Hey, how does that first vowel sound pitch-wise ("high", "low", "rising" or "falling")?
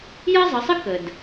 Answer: high